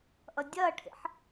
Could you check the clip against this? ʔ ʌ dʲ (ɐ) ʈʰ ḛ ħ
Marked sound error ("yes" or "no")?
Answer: no